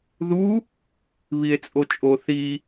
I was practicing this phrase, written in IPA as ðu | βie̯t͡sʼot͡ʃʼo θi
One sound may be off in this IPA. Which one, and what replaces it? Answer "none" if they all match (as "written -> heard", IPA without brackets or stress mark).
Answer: none